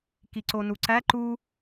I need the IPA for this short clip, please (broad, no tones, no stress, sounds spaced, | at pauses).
k i ǀ o n u ǀ æ ǃ u